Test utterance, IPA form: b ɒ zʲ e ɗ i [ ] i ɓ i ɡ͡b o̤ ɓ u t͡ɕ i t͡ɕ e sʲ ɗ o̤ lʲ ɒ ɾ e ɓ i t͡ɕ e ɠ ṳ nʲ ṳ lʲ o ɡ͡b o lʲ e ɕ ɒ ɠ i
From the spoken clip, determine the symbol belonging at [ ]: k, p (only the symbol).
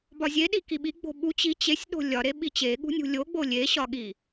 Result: k